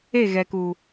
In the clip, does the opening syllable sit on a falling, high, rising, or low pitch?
falling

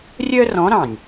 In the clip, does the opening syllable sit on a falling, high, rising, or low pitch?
high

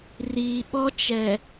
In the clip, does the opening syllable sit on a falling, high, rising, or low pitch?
low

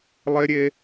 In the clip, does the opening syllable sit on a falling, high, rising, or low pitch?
high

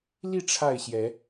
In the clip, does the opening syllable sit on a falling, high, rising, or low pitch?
falling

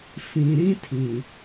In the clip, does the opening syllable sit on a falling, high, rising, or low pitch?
low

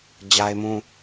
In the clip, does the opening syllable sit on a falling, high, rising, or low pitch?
high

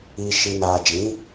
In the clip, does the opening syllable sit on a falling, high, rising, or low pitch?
low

